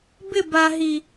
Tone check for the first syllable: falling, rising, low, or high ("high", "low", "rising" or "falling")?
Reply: falling